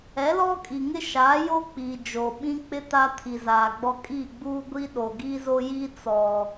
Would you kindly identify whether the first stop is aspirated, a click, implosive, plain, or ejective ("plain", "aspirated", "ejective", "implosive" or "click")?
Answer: ejective